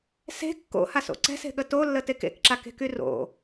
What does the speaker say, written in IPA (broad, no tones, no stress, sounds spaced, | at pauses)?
s e̤ kː o̰ h a s o̰ ǀ ɛ̤ s e̤ ɠ ə t o lː ə t e k ḛ k ǁ a k e̤ k y r o̰